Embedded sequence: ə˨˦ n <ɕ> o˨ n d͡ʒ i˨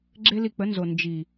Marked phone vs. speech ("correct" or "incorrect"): incorrect